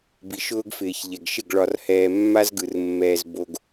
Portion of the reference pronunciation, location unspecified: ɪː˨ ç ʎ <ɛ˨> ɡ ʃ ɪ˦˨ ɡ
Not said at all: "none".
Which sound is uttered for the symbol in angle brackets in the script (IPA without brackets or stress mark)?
ɛ˨